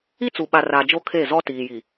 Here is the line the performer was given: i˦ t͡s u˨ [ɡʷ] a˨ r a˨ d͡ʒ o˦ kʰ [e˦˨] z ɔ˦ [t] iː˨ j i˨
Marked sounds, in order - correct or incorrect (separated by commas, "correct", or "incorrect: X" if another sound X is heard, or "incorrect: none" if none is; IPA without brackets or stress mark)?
incorrect: ɓ, correct, correct